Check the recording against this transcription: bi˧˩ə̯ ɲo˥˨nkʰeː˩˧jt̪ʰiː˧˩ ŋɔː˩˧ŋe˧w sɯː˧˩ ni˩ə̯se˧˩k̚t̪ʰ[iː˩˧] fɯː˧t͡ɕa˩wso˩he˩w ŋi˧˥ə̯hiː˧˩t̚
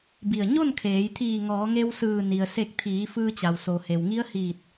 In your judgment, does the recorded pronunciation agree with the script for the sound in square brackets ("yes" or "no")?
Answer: yes